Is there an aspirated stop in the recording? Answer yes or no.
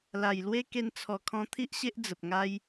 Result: yes